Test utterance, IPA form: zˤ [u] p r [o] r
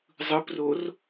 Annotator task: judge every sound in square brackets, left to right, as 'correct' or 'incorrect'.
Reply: incorrect, correct

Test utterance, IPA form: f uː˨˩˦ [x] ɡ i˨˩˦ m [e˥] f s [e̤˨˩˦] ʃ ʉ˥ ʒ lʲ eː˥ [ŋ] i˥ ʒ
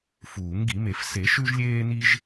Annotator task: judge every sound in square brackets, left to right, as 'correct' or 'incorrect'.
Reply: incorrect, incorrect, incorrect, incorrect

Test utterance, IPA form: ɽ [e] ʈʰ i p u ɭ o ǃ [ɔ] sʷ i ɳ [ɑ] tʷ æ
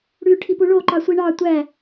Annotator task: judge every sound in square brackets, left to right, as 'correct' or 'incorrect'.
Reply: incorrect, incorrect, correct

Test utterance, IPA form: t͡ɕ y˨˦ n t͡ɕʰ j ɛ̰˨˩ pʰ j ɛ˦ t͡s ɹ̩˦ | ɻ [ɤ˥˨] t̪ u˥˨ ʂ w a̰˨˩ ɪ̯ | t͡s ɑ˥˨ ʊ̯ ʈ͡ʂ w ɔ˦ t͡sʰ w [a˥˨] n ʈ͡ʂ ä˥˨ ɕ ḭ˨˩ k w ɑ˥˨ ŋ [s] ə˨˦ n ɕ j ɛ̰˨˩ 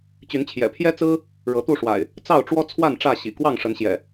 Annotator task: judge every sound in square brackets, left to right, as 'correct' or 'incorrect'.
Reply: incorrect, correct, incorrect

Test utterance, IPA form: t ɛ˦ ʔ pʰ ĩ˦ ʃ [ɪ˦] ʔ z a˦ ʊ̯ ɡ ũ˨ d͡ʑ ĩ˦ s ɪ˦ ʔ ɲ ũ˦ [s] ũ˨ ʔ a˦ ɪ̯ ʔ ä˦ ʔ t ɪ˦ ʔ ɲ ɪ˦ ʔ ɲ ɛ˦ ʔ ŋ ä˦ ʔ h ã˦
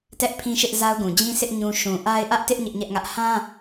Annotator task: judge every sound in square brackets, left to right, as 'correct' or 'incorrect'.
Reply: correct, incorrect

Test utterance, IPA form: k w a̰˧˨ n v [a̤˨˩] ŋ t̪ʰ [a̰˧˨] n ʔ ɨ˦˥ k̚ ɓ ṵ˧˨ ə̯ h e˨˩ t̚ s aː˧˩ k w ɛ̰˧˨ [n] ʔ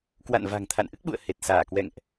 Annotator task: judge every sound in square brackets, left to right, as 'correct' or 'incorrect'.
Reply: correct, correct, incorrect

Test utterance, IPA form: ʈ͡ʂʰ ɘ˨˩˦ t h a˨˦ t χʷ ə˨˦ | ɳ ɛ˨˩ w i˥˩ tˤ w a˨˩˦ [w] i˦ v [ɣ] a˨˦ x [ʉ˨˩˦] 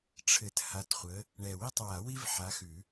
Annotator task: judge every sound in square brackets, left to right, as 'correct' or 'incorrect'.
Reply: correct, incorrect, correct

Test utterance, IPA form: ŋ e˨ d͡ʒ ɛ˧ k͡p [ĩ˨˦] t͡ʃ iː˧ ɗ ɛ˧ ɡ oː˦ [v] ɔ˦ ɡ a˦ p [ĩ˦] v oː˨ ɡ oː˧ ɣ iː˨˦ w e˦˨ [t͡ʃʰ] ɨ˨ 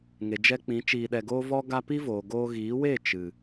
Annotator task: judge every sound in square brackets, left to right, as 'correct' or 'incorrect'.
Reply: correct, correct, incorrect, incorrect

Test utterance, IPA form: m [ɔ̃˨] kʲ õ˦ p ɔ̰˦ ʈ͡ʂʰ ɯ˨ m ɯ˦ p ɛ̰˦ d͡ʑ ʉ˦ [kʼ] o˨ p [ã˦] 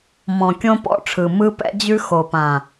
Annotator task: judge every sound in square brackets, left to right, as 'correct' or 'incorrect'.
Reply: correct, incorrect, incorrect

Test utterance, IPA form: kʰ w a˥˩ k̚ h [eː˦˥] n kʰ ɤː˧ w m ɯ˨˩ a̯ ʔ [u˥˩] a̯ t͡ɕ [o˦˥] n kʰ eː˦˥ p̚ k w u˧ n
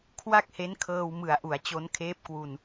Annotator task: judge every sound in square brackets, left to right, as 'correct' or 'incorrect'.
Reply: incorrect, incorrect, correct

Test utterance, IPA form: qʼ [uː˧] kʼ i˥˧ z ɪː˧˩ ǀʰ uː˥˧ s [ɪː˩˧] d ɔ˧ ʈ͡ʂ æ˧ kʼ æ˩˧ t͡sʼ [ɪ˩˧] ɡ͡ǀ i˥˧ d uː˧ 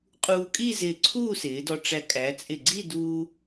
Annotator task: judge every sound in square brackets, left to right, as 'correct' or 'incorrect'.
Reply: correct, correct, incorrect

